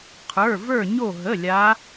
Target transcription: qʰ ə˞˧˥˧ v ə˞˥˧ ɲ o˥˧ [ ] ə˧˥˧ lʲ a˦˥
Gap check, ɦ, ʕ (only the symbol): ɦ